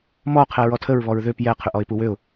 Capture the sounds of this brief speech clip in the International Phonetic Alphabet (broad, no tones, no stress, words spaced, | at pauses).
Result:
mɔ qʰɛɹɔtʰəɹ βɔɹðøp jɛ qʰʏʔɔɪ̯puwøʊ̯